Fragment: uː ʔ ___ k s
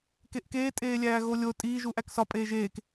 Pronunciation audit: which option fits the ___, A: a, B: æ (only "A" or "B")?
B